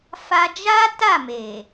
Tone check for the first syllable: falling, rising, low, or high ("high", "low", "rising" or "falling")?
high